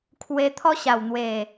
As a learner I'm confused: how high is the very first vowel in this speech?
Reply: mid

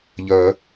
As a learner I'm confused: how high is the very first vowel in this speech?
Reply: mid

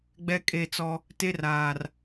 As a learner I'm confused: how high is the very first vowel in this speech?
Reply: mid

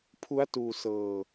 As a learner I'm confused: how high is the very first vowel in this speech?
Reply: high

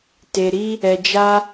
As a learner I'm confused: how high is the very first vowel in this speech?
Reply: mid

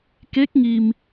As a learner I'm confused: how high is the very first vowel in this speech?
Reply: mid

